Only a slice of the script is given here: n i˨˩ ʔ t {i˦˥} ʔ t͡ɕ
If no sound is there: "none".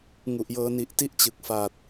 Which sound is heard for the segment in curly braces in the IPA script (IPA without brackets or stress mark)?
i˦˥